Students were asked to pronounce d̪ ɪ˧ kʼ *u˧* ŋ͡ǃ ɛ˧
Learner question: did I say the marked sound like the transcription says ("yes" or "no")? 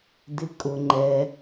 no